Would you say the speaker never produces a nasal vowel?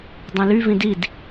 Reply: no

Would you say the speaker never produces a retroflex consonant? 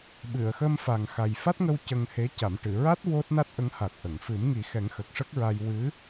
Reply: no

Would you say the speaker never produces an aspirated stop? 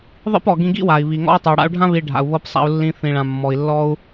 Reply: yes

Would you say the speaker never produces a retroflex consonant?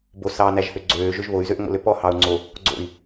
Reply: yes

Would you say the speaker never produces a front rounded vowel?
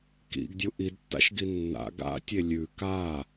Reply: yes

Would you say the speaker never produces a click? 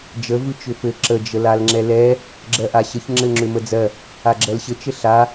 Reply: no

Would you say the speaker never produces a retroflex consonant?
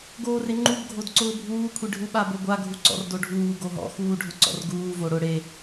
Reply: no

